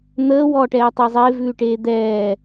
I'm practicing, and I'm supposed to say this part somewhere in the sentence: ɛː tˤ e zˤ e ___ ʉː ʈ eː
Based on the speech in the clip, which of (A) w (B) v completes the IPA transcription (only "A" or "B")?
B